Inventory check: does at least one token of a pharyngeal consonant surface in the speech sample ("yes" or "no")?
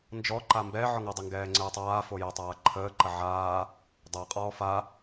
yes